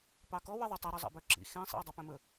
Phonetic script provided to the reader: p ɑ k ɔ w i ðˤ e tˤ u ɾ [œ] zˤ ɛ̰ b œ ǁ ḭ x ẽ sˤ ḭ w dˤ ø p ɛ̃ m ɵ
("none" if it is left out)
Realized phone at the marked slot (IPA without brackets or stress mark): ɵ